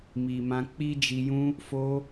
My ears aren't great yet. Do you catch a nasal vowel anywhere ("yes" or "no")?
yes